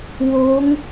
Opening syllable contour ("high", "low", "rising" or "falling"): rising